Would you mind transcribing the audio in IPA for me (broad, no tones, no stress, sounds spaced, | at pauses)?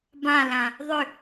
b ã l ã | ðˤ ʏ